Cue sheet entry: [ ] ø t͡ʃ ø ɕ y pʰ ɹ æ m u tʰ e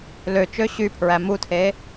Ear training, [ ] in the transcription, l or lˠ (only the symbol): l